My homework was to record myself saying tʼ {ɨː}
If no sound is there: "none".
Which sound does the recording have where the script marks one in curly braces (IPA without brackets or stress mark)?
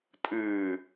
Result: ɨː